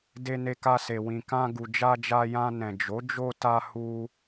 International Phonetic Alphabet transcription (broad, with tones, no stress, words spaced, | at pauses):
de˨ne˨ka˨ se˨wĩ˨kã˧ ɡu˨d͡ʒa˧d͡ʒa˧jã˧ nɛ̃˨d͡ʒo˨˦d͡ʒo˧ta˧ hu˧